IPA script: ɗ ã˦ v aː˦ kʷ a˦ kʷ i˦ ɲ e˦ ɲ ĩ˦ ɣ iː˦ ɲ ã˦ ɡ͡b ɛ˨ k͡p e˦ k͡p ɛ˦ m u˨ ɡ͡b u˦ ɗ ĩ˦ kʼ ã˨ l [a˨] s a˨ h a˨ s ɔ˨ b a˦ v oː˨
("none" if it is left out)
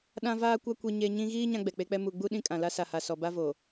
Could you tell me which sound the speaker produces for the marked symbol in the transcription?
a˦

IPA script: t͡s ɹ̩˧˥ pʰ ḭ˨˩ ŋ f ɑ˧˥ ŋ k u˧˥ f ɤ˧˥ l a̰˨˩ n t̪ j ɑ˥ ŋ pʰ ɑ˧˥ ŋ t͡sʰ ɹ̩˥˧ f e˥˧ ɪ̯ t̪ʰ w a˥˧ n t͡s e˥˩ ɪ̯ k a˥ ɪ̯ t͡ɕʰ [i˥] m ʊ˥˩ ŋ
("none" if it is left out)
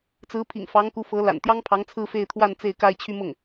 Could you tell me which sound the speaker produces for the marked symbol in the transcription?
y˥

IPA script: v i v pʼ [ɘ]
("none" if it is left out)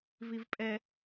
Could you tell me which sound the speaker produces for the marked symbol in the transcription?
ɛ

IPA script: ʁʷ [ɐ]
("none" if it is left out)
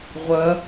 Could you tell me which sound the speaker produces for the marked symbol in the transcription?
ɐ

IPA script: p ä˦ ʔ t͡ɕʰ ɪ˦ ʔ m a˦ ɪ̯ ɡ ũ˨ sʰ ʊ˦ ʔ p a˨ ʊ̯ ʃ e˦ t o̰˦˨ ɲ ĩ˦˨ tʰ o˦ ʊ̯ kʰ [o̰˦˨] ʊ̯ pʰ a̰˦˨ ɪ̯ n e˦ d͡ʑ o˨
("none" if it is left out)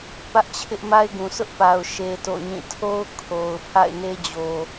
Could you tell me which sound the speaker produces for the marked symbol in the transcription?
o˨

